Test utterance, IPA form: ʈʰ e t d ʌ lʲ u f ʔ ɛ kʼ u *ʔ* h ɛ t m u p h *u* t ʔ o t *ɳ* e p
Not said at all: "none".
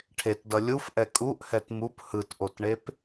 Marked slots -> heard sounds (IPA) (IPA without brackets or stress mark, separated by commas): ʔ, ɯ, ɳ